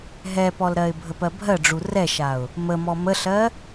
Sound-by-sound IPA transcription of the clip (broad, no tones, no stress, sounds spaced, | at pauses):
ɦ ɛ p ɔ l ɾ ɜ ɪ̯ bʱ ə p ɜ bʱ ɜ ɖ͡ʐ u r ɛ ʃ a ʊ̯ | m ə m ɔ m ə ɬ ɜ